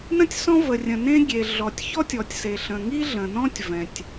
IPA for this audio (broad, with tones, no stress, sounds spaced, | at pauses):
n ə̃˥ tʲ s ɔ̃˥ v ə˩ rʲ ə̃˩ n ẽ˥ ɡʲ e˩ ɮ ɔ˩ tʲ ç ɔ˥ tʲ ɔ˩ tʲ s e˩ ɬ ə̃˩ ŋ i˥ ɮ ə̃˩ n ɔ̃˥ tʲ v ɛ̃˩ tʲ